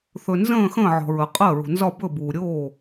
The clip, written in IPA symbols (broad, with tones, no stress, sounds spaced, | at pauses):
θ ɵ˩ n z ə̃ː˧˩ x ə̃ː˧˩ ʕ ɔ̤˩ ɹ ə˩ qʼ ɜ˧˩ ɹ ṳ˩ n z ɒ˧˩ b ɵ˧˩ b uː˩ ɾʲ oː˧˩